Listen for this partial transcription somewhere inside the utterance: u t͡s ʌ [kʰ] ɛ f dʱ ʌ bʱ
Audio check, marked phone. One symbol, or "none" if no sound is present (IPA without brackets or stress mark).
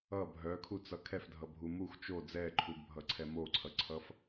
kʰ